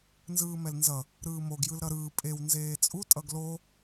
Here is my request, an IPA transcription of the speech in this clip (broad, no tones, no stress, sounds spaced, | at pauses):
n z ɯː m ɛ l n z ʌ | ɾ ɯː m o ɡ j ɯ l ɾ ʌ ɾ ɯː pʼ e w n z eː t͡sʼ u tʼ ʌ ɡ l o